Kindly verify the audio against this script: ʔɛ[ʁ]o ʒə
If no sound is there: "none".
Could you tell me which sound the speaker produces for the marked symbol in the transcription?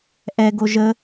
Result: ɡ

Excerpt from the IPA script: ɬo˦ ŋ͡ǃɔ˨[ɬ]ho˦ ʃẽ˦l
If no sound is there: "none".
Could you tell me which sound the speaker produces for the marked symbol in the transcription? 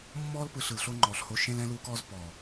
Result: ɬ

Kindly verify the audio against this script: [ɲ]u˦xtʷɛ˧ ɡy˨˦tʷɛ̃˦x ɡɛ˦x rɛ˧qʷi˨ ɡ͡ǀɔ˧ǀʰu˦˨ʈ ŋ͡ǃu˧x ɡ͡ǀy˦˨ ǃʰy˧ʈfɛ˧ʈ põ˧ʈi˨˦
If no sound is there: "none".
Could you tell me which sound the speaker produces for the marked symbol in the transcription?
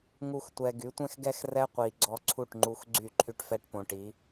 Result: ŋ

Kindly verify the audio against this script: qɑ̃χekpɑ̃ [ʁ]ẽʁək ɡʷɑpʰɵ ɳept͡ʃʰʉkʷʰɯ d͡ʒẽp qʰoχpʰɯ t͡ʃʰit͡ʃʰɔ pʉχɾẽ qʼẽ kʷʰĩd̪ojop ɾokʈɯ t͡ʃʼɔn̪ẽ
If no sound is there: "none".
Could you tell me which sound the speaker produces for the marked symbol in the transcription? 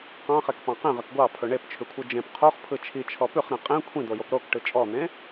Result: q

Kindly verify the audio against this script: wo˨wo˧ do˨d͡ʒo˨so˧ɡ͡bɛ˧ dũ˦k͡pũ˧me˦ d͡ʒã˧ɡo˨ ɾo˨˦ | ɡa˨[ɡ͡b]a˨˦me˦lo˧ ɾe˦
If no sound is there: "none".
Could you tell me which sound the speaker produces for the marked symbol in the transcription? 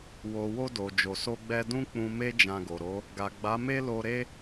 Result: ɡ͡b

